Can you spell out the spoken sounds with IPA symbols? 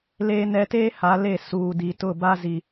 l eː˦ n ɛ˦ t eː˦ h a˨˦ l e˦˨ s uː˨ d i˨ t ʊ˦˨ b a˦ z i˦

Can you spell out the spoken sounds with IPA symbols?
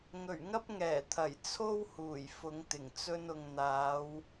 ŋ ɵ˨˩ ɥ ŋ ɐ˥ p̚ ŋ ɛː˨˩ t̪ʰ ɐ˨˩ j t͡sʰ o˥ w h uː˨˩ j f ʊ˨˧ ŋ t̪ ɪ˨˩ ŋ t͡s ɵ˧ n ʊ˨ ŋ n̪ aː˨˧ w

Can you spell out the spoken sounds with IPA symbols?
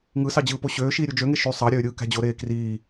ŋ ɯ s ɑ d͡ʑ ɯː p o ɕ øː ʃ iː ɾʲ u d͡ʒ ø ŋ e ʃ y sˤ ɑ ɾʲ øː ɾʲ ɯː k æ̤ d͡ʑ o ɾ eː k r iː

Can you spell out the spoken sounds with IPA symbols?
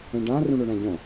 ẽ ɖ ã r ũ ɳ o ɳ æ̃ ɟ õ

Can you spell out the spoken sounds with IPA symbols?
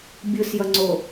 bʲ ɯ s j ʌ ŋ͡ǀ o

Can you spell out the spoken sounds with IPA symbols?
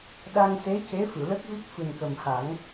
ɗ a˧ ŋ s e˧˥ c e˧˥ f ɨ˨˩˨ l ə˦˥ k̚ v i˦˥ k̚ f ɨ˨˩ n k ə˨˩ m h a˨˩˦ ŋ

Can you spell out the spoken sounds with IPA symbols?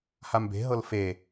h a m b e̤ ɦ ɤ l f e

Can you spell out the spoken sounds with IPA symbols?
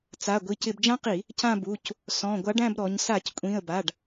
t͡s a˩˧˩ ɡʷ i˩˧˩ c ɪ˧˩˧ b d͡ʒ ã˦˥ q i˧˩˧ | c ã˦˨ b u˩˧˩ c | s ɔ̃˩˧˩ ɡʷ a˨˥ ɖ æ̃˦˨ b ɾ ɔ˩˧ ɲ s a˧˩˧ c kʷʼ ĩ˩˧˩ ə̯ b a˩˧˩ ɖ

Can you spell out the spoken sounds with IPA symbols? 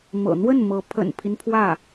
m ɤ̰˨˩ n̪ w ə˥˩ n m ɤ˧˥ pʰ ə̰˨˩ n pʰ i˦ n pʰ w ä˥˩

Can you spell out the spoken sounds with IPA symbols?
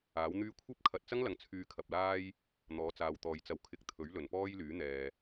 aː˨˥ w n̪ yː˥ kʷʰ ɐ˥ p̚ kʰ ɐ˨ t̚ t͡s ɐ˥ ŋ l ɐ˨ ŋ t͡sʰ yː˧ kʰ ɐ˨ p̚ l aː˥ j | n̪ ɔː˨˥ t͡s aː˨ w t̪ ɔː˨ j t͡s ɐ˧ w kʰ ɪ˧ k̚ t̪ʰ ɵ˨˥ ɥ l ɵ˨˩ n p ɔː˥ j l yː˨˥ n̪ ɛː˨

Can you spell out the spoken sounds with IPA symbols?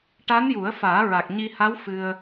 ʈ a˧˥ n j u˨˩˦ ə̯ f aː˨˩˦ ɹ a˨˩ k̚ ɲ i˧ h a˧˥ w f ɨ˧ ə̯

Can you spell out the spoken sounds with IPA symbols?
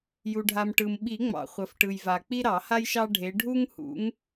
j u˩ ɖʱ a˩ m ʈ ɯ˩ m ɓ i˨˩˦ ŋ͡m ɑ̰˩ χʷ ɐ˩ f ʈ ɯ˩ j v a˩ k͡p i˦ ɾ ɑ˨˩˦ h a˦ j ʃ ɑ˦ ɖʱ e˨˦ ɖʱ u˦ ŋ h ṵ˨˦ ŋ

